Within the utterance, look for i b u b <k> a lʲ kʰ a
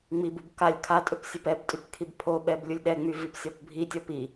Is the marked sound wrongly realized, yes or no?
no